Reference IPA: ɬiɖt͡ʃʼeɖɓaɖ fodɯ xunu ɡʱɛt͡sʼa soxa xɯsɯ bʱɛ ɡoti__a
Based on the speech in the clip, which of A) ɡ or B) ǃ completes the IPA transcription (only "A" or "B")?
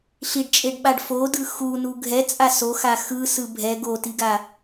A